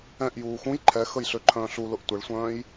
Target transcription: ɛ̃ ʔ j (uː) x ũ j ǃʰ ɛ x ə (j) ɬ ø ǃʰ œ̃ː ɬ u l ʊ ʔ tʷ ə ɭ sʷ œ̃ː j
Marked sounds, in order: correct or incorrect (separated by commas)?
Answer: correct, correct